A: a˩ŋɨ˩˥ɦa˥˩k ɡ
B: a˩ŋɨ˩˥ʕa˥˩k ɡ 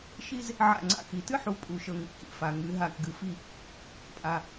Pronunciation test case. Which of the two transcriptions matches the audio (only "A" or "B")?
A